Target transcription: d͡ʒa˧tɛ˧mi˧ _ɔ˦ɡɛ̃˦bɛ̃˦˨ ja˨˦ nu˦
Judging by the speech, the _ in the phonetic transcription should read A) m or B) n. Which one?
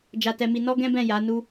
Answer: B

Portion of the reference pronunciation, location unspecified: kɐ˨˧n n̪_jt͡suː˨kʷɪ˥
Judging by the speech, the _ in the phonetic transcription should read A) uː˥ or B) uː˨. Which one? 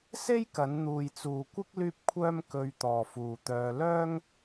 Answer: B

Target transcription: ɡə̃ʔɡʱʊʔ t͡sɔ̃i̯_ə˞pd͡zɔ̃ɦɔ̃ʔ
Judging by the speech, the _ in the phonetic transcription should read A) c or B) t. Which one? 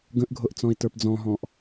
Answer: B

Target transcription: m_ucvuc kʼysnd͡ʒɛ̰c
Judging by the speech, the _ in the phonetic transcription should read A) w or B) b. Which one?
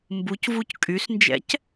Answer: B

